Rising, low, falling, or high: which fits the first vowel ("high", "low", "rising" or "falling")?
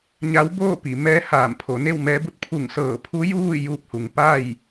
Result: rising